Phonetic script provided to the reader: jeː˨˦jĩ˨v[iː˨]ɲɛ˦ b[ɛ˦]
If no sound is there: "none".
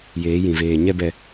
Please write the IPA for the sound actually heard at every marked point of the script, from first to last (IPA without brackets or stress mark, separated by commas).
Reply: eː˨, ɛ˨